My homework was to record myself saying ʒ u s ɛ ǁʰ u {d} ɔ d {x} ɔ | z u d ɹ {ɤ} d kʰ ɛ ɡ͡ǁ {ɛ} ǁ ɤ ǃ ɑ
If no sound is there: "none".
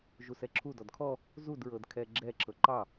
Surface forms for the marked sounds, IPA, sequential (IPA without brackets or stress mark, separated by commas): d, kʰ, ɤ, ɛ